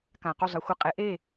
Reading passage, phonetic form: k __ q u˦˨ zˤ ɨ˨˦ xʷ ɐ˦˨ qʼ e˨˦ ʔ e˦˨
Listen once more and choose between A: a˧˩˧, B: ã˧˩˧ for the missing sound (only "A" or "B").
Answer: B